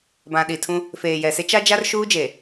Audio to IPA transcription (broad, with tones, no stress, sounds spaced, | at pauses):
b ã˨ ɗ i˨ tʰ ũ˦ | f eː˨ j ɛ˨ s e˦ t͡ʃ a˦ d͡ʒ a˦ r ʃ uː˦ d͡ʒ e˨